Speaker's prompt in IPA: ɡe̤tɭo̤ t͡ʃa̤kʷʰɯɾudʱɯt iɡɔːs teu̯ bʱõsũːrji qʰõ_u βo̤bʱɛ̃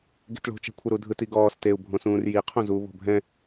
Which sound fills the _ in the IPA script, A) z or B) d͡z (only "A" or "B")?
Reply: A